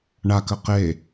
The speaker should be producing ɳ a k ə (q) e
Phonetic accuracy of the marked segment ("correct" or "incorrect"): correct